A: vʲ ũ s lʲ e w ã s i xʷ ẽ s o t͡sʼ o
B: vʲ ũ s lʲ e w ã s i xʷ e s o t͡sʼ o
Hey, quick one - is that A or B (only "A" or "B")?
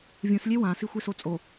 B